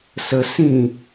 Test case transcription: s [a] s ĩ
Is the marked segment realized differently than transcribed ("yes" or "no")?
yes